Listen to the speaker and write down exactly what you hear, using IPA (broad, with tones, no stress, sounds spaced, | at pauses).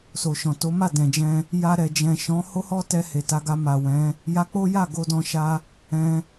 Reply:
s o˨ ʃ ɔ̃˨ t o˨˦ m a˦˨ d ɛ̃˨ d͡ʒ ɛ̃˧ | j a˧ ɾ ɛ˨ d͡ʒ ɛ̃˨ ʃ ɔ̃˨˦ h o˦ h ɔ˦ t ɛ˧ h e˨ t a˧ ɡ a˧ m a˨ w ɛ̃˨˦ | j a˧ k͡p o˦ j a˦˨ ɡ o˧ d ɔ̃˧ ʃ a˧ | ɛ̃˧